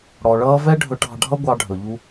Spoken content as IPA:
ɽ ɔ˩ ɭ ʌː˥ v ɛ˥ ɖʱ ɵ˧ ʈ ɑ̤˧ ɖʱ ʌ˥ ɡʷ ɑ˧ ɖʱ ɵ˩ ʎ u˧

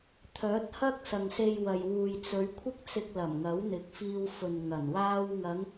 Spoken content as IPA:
t̪ʰ œː˨˥ t̚ h ɐ˥ k̚ s ɐ˨ ŋ s e˧ j w ɐ˨ j w uː˨ j t͡s ɵ˨˧ ɥ kʷʰ ɪ˥ k̚ t͡s ɪ˧ k̚ l ɐ˨˩ m ŋ ɐ˨˥ w n̪ ɪ˨˥ k̚ f iː˧ w f ɵ˨ n ŋ ɐ˨˩ n w aː˥ w ŋ ɐ˨˧ ŋ

